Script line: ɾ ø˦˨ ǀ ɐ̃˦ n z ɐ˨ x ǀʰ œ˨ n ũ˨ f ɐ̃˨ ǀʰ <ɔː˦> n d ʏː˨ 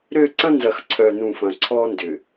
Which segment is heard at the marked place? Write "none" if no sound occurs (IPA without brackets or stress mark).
ɔː˦